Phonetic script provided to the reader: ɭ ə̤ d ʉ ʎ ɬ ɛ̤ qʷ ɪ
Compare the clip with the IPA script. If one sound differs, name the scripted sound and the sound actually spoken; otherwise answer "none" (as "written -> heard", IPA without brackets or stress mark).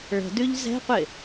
ɬ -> z